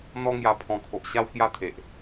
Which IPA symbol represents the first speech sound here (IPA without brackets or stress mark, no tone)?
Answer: n̪